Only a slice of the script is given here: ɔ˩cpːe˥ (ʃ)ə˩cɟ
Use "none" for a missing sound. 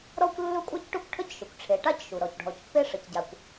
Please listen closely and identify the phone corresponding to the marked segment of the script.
ʂ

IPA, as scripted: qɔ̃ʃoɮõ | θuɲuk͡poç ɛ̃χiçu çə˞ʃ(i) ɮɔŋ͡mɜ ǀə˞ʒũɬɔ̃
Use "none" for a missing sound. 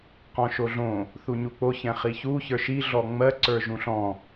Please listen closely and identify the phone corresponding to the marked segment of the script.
i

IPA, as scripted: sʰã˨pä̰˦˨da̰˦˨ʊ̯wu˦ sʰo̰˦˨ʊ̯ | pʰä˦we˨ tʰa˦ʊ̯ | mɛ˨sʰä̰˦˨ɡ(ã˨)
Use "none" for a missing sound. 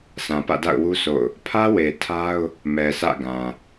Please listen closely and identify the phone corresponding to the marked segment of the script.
ã˨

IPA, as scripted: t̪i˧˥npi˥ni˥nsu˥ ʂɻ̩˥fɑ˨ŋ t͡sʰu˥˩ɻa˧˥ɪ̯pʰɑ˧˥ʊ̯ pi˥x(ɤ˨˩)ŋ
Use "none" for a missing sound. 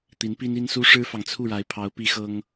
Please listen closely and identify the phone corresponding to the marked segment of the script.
ɤ˥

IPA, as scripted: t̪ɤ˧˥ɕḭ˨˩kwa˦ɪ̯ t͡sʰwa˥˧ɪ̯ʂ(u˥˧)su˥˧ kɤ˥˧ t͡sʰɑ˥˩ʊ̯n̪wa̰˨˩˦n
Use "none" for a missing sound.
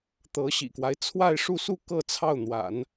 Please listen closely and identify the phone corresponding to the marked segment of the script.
u˥˧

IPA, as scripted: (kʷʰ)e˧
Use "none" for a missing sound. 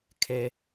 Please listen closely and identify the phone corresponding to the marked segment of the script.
kʰ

